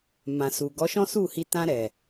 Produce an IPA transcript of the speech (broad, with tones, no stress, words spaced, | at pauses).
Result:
mã˨su˨ ɡɔ˨˦ʃɔ̃˦su˦˨hi˧ tã˧ɾɛ˨